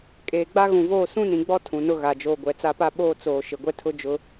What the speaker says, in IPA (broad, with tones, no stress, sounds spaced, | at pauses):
kʼ eː˨ ɡ͡b a˦ ɣ ũ˨ v oː˦˨ s ũ˦ n ĩ˨ ɡ͡b ɔ˦ tʰ ũ˨ n ʊ˦ ɣ a˨ d͡ʒ oː˨ ɡʷ ɛ˨ t͡s a˦˨ p a˦ ɓ oː˦ t͡s oː˨ ʃ ɪ˨ ɡʷ ɛ˦ tʰ ʊ˦ d͡ʒ ʊ˦